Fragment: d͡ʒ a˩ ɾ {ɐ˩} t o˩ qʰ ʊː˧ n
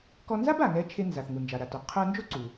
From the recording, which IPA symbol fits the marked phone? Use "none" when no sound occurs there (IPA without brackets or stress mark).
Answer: a˩